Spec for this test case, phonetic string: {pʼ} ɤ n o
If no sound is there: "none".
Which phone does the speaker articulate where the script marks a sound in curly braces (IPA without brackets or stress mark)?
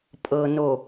pʼ